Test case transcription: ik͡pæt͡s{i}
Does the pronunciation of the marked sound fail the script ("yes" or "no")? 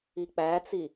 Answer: no